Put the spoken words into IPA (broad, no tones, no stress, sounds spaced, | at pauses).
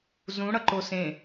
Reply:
z ũ ɽ ʌ ǃ o s ẽ